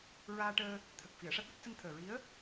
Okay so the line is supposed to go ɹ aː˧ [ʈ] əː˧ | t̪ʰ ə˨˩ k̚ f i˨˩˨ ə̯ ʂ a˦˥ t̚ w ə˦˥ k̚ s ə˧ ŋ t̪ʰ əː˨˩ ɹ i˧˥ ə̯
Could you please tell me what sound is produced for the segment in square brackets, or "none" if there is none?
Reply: ʈ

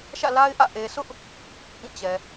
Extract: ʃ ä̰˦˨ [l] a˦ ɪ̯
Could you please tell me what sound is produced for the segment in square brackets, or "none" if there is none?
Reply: l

